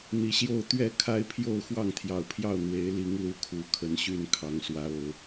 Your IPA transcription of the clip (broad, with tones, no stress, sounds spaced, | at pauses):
n̪ i˨˦ ɕ j o˥˨ ʊ̯ t̪ ɥ ɛ˥˨ kʰ a˦ ɪ̯ pʰ j o˥˨ ʊ̯ x w ɑ˥˨ ŋ t̪ʰ j ɑ˨˩ ʊ̯ pʰ j ɑ˥˨ ʊ̯ n̪ w e˨˦ ɪ̯ l i˨˦ ŋ l u˨˩ kʰ u˨˦ kʰ ə˨˦ n ɕ y˥˨ n kʰ ɑ˨˦ ŋ s w ä˨˦ o˨˩ ʊ̯